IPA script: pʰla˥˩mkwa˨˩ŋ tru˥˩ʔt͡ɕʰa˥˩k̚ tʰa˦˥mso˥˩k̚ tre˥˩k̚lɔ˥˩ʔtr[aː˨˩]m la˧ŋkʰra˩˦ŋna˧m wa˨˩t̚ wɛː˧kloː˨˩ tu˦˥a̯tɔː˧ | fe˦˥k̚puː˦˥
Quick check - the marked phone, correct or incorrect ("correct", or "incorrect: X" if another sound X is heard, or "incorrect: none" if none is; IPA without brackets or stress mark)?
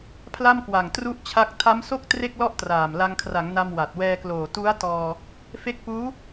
correct